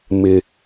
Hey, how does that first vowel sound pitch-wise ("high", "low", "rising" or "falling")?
low